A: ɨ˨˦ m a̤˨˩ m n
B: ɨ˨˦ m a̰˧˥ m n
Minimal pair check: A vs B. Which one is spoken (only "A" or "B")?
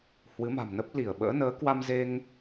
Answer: A